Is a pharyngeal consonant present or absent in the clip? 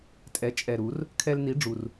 absent